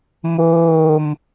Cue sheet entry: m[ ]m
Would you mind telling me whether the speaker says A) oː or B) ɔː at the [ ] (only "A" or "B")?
A